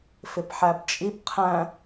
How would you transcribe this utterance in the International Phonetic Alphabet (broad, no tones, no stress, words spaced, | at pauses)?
fɪpħæbt͡ʃʼip qʰæ̃